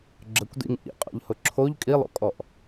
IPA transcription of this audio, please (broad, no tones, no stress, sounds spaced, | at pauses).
ɡ͡ǁ ə kʷ d ḭ ŋ ʔ ḭ qʼ ɔ̰ ʎ h ʊ ǁʰ o ʎ kʼ i lˠ o̰ kʼ ɔ ʔ